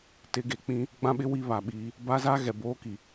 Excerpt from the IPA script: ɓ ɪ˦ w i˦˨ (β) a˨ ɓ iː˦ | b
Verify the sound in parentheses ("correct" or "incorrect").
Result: correct